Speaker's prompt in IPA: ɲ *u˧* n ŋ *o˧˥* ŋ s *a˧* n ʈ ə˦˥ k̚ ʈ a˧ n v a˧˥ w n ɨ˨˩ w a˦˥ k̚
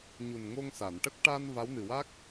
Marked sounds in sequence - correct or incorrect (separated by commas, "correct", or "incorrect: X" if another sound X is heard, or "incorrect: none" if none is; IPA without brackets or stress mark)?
incorrect: u˨˩, incorrect: o˧, incorrect: a˨˩˨